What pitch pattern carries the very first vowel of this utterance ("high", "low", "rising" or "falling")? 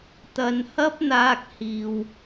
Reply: low